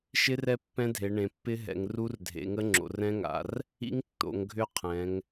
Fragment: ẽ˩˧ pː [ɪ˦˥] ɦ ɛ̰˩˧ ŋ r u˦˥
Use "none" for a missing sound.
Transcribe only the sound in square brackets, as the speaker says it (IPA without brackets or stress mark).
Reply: ɪ˦˥